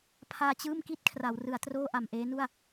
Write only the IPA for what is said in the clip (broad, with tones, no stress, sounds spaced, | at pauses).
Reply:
pʰ aː˧ t͡ɕ ɯː˥˩ m k i˥˩ t̚ kʰ r a˩˦ w r ɯ˩˦ a̯ t r oː˥˩ ʔ a˨˩ m ʔ eː˦˥ n u˥˩ a̯